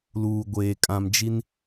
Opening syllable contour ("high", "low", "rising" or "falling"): low